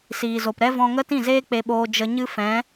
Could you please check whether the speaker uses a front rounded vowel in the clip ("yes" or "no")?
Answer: no